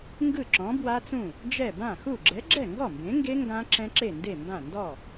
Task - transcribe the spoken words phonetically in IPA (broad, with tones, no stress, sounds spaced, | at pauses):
ŋ ɡ ɯ˥˩ ǁ ɔ̃˨˥ b w a˦˥ t͡s ũ˥˩ | d͡ʒ ɛ˥˩ b ã˥˩ x u˥˩ ɡ͡ǁ ɛ˨˥ ɡ͡ǁ ɛ˥˩ ŋ ɡ ɔ˥˩ m b ẽ˨˥ ŋ ɡ e˦˥ ŋ ɡ ã˦˥ ǁ ɛ̃˦˥ ǁ e˥˩ n d e˥˩ m b ã˥˩ n d ɔ˥˩